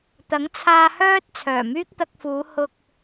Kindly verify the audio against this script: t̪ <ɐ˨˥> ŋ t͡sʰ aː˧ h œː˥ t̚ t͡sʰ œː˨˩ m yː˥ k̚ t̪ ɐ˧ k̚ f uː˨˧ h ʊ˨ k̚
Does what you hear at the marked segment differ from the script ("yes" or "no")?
no